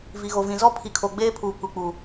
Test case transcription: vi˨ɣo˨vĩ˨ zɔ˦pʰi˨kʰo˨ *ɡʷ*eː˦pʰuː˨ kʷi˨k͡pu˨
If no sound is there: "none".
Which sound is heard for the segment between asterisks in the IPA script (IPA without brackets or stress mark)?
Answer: ɡ͡b